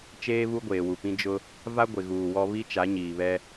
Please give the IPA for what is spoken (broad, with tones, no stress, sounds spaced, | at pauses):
t͡ʃ eː˦ β u˦ ɡʷ eː˨ w u˨ p ĩ˦ d͡ʒ ʊ˦ | v a˦ ɡʷ ɪ˨ ɣ uː˨ w ɔ˦ β i˦ t͡ʃ a˨˦ ɲ iː˨ β ɛ˦